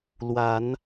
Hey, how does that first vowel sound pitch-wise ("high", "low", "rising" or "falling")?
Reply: rising